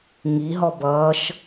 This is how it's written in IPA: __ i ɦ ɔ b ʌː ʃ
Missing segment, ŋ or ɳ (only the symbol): ŋ